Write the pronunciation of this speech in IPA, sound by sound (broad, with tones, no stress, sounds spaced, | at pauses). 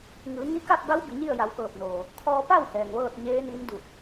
ŋ ɯː˩˧ ŋ i˧˥ k a˥˨ p̚ b a˧˥ w b i˩˧ ɲ i˥˨ ə̯ j a˩˧ w k ɤː˧˩ p̚ n oː˩ | kʰ ɔː˧ p a˥˨ w h ɛː˩ ŋ ʋ ɤː˥˨ t̚ ɲ eː˧˥ n i˧˥ n d u˧˩ k̚